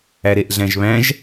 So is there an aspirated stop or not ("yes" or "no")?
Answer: no